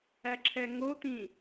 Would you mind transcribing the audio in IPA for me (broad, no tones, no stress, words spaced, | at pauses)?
æǁʰɛŋot̪ĩ